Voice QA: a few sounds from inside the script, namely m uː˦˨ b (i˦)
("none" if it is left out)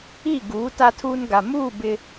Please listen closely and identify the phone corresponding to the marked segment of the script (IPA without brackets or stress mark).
ɪ˦